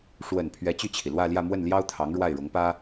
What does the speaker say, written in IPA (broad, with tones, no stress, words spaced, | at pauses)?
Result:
ʂwə˨˩n pʰɥɛ˧˥t͡ɕy˥˩t͡ɕʰi˩ lwä˥˧ljä˥˧ mwə˥˩nljɑ˥ʊ̯t̪ʰɑ˧˥ŋ ɻwa˥˩ɪ̯ɻʊ˧˥ŋpä˥